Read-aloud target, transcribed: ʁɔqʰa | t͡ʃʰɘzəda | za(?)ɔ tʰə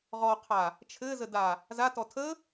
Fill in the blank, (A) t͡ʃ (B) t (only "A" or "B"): B